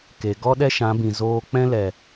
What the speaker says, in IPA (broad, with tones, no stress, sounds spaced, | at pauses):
k e˨ ɡ ɔ˦ ɗ ɛ˦ ʃ ã˨˦ b ĩ˨ z oː˧ k͡p ɛ̃˦ l ɛ˨